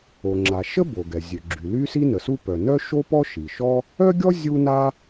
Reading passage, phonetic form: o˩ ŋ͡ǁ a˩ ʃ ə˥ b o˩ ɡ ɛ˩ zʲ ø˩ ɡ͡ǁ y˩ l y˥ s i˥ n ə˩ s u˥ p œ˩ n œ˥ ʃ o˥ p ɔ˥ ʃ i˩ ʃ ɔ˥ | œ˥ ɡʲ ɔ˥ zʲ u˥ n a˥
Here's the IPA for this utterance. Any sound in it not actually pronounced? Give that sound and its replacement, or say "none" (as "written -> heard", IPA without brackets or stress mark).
none